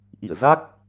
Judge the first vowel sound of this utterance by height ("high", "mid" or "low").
high